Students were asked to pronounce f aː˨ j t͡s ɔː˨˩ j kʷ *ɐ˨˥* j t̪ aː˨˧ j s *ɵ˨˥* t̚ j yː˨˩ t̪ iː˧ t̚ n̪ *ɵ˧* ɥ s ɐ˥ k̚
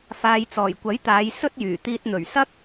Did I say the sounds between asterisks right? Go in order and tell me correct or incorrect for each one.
correct, incorrect, incorrect

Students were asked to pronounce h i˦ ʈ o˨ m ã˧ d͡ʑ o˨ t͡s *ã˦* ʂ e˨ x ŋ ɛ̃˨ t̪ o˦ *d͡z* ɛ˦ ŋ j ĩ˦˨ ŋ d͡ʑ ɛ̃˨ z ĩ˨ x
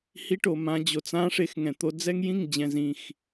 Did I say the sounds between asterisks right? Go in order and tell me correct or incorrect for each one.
correct, correct

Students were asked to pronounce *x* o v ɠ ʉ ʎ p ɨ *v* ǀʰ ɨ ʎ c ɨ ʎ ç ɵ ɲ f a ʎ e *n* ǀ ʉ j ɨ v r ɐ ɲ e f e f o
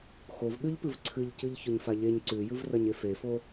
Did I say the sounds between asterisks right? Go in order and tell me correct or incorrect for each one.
correct, correct, incorrect

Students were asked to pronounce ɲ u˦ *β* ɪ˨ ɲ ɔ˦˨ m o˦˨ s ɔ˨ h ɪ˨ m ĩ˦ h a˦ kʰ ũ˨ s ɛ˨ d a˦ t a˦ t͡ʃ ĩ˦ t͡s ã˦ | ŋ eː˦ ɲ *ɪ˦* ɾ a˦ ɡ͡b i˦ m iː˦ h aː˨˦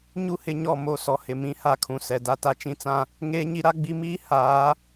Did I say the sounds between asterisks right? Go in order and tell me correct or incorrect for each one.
incorrect, incorrect

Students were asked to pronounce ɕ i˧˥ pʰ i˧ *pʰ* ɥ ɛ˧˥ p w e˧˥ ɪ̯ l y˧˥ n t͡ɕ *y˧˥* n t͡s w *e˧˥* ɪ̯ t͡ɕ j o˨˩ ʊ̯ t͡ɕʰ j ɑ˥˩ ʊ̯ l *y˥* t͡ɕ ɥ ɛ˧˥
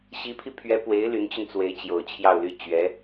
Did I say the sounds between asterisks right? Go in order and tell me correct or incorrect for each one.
correct, incorrect, correct, correct

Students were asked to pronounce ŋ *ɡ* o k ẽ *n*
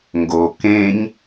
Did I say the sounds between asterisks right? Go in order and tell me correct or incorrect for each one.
correct, incorrect

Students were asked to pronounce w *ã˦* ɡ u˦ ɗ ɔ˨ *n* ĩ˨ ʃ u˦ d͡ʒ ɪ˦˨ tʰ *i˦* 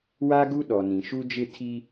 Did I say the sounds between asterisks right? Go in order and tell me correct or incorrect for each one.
incorrect, correct, correct

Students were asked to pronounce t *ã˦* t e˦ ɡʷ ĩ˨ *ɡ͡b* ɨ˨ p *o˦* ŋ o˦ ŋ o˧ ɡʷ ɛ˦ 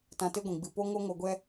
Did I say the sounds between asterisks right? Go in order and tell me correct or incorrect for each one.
incorrect, correct, correct

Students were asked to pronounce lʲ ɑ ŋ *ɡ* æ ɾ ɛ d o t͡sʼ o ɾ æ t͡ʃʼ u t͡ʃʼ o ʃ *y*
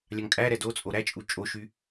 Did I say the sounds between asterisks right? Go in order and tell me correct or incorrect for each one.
incorrect, correct

